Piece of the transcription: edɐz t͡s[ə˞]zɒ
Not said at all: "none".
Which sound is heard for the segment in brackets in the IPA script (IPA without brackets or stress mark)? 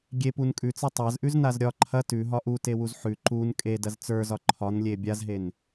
ə˞